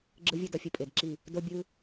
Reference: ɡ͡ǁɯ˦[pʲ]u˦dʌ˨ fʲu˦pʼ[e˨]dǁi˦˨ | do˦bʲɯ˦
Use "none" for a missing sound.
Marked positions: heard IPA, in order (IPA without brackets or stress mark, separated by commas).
vʲ, e˨